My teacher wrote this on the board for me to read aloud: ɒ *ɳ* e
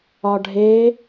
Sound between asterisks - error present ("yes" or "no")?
yes